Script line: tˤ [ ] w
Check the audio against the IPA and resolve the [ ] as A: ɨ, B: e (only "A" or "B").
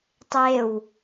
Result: B